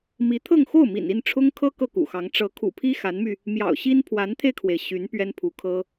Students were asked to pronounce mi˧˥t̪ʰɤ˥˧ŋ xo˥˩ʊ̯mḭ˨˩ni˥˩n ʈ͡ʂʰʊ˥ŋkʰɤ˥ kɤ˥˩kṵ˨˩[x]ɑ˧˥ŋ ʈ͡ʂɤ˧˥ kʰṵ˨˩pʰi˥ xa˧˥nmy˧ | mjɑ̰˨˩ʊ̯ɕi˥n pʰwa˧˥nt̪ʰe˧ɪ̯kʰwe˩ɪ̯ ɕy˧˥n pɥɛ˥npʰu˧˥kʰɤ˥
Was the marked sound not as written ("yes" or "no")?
no